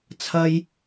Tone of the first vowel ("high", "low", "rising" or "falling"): high